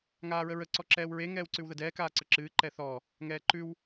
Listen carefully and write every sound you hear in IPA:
ŋaːɹəɹə ǀɔǁɛːwɹe ŋɛːwǀʉwðədɛː kaːǀəǁɨː ǃɛθɔ | ŋɛːǃʉw

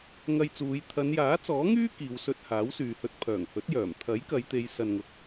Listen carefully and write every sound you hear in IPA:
ŋɐ˧jt͡suː˨˧j t̪ʰɐ˨˧njaː˨˥t͡sɔː˨˥ŋyː˥ kiː˨˧wsɵ˧t̚ haː˨˥wsyː˨hɵ˧t̚ pʰœː˨˩ŋhɵ˨˥t̚ jœː˨˩m t̪ʰɐ˨˥jkɐ˨˧jt̪e˨˧j sɐ˧nŋʊ˧k̚

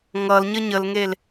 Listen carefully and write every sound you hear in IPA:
ŋʌl ɲəɲəlŋel

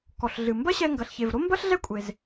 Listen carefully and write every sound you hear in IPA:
kɔ˩ɬɮɨ˩ mbɐ˥ɕɛ˧ ŋɡɐ˩ɬçe˩vɾo˥mbɐ˥ɬ ɮɛ˥kʷʼe˩z

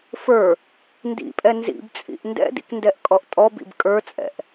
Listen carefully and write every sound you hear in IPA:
fə˞ | ndḭpʼɛ nzḭbt͡sʼḭʔ ndɛ̰dḭkndɛʔkʼɔʔ tʼɔbḭb kʼə˞t͡sʼɛ̰ʔ

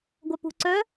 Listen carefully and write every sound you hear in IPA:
ɡʷœpṳ ǀœ

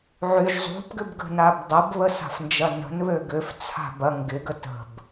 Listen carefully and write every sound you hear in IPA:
ʕyʒ zˤṳpɡʏbɡə̤nab dˤəbβəsa̤fnd͡ʒɐ nə̤nβø ɡʏft͡sʰa̤ bɐ ŋɡɪɡə tə̤b

